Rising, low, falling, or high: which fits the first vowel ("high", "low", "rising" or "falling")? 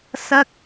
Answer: high